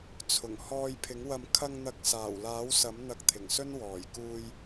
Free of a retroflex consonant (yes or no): yes